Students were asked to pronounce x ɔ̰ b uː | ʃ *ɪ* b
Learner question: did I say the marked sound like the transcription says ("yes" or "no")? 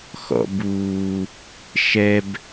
no